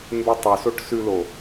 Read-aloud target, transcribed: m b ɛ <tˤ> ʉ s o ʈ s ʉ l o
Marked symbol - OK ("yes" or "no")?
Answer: yes